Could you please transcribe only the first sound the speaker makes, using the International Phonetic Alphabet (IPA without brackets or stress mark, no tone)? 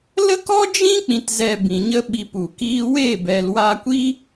l